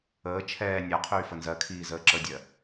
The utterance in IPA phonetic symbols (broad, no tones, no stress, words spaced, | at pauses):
əː t͡ʃʰɛː nʲa qʰyːfənzɜkʰiː zəːǁədʲɜ